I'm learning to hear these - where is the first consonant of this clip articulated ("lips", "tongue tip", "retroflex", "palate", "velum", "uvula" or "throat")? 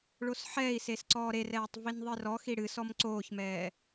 retroflex